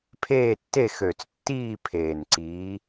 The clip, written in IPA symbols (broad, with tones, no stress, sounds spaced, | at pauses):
pʰ eː˦˨ tː e˦˨ x ø˨˩ t͡s tː iː˦˨ pʰ eː˨˩ n ǀ iː˨˦